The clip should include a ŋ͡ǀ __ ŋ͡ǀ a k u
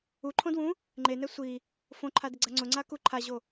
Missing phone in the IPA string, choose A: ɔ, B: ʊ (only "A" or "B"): B